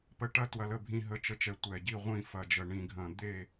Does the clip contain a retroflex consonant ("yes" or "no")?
yes